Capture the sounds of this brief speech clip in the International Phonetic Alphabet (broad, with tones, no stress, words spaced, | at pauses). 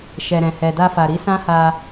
ʃɛ˨ɾɛ̃˨ hɛ˨da˧fa˨ɾi˨˦ sã˦ha˧